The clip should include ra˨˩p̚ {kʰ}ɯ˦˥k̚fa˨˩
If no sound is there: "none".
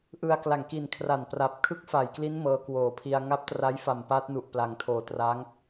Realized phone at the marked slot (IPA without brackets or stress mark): kʰ